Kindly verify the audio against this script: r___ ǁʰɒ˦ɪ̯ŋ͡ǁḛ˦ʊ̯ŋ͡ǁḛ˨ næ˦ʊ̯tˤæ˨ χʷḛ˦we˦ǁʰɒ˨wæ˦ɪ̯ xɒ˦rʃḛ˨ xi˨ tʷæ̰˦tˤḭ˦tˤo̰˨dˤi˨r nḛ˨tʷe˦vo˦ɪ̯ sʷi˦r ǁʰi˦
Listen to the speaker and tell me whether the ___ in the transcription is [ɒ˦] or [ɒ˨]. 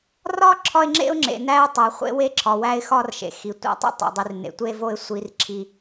ɒ˦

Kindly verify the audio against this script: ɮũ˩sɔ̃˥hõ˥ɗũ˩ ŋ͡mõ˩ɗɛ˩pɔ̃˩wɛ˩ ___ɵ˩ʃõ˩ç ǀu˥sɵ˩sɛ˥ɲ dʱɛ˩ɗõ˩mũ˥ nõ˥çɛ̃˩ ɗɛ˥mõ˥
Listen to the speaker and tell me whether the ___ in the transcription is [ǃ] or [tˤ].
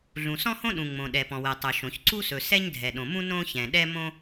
tˤ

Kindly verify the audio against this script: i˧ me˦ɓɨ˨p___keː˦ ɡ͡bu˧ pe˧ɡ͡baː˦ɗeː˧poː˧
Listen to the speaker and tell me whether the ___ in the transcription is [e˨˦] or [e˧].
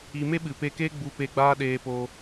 e˧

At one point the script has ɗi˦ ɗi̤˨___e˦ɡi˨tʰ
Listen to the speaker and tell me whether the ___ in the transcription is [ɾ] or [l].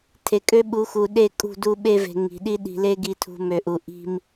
l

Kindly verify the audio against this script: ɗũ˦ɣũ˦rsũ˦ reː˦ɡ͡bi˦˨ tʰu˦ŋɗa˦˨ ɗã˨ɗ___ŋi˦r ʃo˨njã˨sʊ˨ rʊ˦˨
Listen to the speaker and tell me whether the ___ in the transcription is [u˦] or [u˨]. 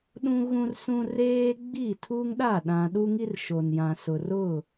u˦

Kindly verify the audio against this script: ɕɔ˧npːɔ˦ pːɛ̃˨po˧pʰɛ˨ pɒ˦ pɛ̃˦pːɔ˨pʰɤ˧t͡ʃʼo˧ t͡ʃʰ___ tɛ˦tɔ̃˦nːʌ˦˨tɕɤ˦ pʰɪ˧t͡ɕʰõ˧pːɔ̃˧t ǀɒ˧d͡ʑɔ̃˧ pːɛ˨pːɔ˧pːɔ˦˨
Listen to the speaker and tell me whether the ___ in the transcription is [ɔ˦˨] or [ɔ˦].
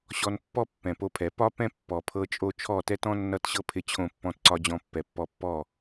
ɔ˦˨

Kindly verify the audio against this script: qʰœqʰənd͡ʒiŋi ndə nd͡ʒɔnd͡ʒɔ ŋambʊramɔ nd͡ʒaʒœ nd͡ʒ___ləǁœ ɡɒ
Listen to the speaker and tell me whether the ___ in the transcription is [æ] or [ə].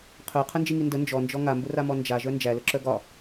æ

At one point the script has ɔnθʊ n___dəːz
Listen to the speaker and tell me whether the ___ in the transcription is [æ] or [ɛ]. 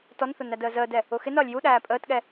æ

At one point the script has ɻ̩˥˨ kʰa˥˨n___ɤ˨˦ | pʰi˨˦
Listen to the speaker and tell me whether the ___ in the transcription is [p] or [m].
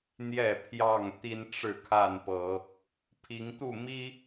p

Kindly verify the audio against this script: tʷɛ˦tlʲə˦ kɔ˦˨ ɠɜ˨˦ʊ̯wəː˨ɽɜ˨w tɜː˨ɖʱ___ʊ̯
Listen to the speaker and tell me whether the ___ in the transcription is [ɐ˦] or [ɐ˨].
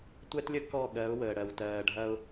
ɐ˦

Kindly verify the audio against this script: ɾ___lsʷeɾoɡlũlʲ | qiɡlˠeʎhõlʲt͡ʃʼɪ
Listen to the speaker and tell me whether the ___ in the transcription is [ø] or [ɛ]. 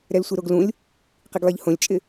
ɛ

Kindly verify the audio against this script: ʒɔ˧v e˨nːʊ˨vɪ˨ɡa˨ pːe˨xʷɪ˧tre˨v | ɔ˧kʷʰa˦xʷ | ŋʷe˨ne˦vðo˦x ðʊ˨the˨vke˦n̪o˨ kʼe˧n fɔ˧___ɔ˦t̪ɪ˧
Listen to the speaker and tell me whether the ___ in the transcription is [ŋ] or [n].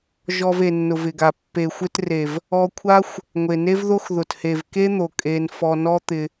n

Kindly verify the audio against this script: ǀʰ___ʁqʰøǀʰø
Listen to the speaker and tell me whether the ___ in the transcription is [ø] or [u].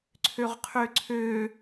ø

